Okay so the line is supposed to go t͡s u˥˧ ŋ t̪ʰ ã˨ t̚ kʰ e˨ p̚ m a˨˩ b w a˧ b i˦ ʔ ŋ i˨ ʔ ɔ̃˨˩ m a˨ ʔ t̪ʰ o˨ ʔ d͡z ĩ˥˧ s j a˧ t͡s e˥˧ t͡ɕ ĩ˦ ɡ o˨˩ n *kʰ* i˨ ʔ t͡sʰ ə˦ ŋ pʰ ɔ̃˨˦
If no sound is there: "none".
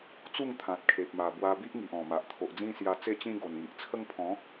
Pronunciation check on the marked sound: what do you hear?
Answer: ŋ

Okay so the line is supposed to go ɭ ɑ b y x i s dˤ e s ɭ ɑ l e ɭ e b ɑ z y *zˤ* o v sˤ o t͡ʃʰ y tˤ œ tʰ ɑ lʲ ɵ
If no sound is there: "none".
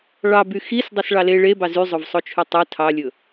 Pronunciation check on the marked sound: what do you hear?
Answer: zˤ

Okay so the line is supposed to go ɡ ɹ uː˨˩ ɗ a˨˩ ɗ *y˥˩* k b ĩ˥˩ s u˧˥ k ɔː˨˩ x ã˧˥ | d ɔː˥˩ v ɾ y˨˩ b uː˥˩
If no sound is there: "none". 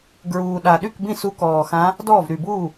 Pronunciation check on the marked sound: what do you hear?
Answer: y˥˩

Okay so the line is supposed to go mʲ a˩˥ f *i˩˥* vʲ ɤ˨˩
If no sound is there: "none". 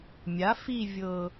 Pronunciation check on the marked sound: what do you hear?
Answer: i˦˨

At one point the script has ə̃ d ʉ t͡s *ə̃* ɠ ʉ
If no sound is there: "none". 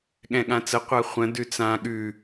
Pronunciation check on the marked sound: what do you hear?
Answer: ã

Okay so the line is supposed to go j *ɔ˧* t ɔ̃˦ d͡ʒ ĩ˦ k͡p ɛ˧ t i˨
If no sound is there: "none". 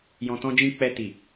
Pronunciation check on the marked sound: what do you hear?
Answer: ɔ̃˧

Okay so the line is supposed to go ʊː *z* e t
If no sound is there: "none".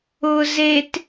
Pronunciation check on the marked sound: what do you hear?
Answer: z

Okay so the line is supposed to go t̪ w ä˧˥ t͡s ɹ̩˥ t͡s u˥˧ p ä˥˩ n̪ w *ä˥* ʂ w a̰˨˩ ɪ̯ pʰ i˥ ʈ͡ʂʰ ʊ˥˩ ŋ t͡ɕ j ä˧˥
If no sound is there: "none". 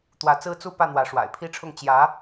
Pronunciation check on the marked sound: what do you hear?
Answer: ä˧˥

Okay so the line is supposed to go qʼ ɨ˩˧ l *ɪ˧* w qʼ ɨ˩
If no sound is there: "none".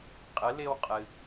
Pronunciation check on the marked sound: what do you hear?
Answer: ɪ˧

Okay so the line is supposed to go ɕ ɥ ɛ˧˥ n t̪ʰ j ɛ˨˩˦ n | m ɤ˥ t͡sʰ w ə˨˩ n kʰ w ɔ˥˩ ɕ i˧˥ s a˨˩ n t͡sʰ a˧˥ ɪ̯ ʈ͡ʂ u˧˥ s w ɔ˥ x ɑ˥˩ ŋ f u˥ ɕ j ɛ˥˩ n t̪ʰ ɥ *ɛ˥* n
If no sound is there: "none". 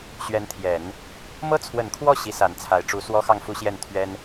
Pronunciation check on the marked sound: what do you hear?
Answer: ɛ˥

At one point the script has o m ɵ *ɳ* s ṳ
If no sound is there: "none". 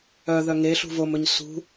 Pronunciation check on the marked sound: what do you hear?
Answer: ɲ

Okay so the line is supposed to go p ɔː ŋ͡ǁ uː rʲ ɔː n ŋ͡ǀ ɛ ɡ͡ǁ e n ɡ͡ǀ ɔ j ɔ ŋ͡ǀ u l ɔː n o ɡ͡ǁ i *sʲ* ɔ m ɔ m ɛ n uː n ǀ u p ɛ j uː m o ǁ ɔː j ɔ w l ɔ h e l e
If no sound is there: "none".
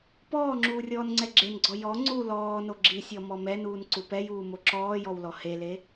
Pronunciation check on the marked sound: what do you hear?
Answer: sʲ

